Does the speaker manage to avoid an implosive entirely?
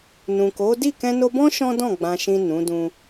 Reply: yes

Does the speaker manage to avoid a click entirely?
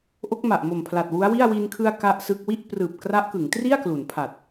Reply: yes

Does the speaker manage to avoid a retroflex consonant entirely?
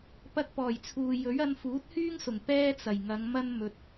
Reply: yes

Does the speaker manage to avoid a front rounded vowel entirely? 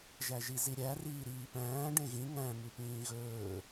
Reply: yes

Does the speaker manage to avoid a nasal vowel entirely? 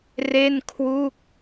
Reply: yes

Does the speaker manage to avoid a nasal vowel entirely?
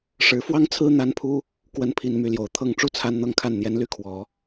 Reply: yes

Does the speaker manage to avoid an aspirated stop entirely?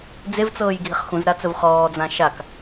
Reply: yes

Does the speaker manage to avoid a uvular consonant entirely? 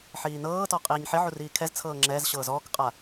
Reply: no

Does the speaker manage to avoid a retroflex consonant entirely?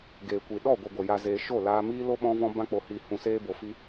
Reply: yes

